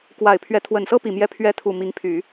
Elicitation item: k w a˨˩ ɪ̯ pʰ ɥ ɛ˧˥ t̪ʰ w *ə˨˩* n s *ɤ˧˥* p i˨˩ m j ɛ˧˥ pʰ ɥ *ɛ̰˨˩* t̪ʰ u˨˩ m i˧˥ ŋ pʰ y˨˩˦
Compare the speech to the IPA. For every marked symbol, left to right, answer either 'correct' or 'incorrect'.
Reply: correct, incorrect, incorrect

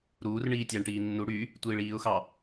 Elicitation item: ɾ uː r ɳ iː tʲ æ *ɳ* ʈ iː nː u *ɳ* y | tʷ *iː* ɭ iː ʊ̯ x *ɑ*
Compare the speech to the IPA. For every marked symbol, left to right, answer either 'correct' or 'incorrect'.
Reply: correct, incorrect, correct, correct

